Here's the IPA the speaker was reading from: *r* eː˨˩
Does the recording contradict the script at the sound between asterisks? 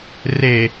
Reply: no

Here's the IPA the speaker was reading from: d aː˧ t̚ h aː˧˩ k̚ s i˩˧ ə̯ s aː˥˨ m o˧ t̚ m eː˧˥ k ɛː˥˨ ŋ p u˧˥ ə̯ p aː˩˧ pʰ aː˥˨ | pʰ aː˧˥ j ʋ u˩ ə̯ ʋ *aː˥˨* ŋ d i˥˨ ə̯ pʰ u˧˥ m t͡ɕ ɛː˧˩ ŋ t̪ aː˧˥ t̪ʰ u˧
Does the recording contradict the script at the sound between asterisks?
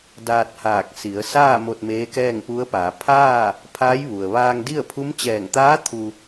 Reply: yes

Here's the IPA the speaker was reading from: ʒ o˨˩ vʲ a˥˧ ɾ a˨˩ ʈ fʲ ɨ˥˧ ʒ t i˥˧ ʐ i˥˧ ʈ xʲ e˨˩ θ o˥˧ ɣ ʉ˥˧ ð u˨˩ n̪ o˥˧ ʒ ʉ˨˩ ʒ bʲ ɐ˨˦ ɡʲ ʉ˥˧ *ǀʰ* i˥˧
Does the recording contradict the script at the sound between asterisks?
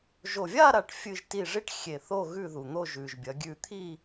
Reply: yes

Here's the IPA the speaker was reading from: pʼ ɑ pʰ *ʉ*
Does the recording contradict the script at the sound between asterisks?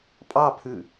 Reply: no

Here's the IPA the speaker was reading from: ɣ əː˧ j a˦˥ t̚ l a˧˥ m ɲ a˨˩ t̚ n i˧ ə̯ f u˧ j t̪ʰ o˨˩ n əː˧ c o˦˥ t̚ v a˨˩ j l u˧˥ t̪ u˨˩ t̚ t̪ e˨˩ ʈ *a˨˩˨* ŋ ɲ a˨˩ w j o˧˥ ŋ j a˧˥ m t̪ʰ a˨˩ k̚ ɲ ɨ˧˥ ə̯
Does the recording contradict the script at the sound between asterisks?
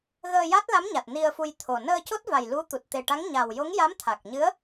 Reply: yes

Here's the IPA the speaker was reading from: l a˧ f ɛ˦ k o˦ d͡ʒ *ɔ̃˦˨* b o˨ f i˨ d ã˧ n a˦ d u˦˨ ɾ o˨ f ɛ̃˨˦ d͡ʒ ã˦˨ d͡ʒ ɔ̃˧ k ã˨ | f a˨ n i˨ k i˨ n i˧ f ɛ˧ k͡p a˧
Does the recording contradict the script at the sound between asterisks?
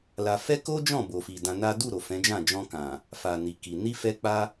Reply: no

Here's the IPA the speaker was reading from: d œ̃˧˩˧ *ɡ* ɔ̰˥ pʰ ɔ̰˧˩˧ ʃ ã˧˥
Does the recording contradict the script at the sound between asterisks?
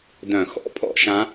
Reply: yes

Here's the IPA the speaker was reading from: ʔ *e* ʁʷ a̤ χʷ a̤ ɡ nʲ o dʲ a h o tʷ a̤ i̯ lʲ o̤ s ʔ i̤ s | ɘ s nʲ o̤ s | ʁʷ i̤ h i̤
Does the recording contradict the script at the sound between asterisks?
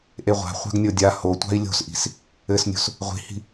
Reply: no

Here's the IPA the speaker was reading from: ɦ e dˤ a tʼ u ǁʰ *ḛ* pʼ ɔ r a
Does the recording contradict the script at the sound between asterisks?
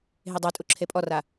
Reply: yes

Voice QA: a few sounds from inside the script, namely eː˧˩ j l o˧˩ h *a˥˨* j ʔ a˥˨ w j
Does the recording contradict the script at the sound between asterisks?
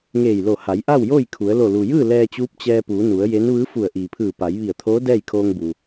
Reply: yes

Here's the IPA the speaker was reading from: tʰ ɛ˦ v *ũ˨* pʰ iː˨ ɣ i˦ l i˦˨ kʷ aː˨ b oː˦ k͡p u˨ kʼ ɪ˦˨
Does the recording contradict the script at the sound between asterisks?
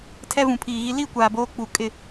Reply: no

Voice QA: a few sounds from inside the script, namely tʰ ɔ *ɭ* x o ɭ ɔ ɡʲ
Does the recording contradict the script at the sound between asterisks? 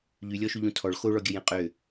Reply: no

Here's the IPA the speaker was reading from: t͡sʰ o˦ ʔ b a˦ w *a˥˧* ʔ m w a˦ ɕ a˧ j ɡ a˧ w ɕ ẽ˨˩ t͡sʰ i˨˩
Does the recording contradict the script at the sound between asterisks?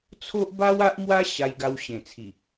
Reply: yes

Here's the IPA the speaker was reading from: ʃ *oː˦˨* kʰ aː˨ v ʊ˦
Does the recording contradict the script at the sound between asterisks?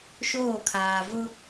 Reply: no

